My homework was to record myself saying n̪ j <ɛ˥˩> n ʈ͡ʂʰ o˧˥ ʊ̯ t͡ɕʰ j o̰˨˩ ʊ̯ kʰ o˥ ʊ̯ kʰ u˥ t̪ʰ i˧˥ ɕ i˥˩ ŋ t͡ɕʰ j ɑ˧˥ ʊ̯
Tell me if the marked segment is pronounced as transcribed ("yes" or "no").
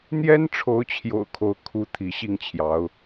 no